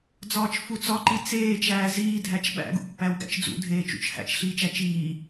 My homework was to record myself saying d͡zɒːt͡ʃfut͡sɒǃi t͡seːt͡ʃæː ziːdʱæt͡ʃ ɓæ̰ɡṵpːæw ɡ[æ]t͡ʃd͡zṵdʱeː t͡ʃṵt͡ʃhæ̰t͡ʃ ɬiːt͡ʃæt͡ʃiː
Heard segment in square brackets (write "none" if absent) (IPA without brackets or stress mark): æ̰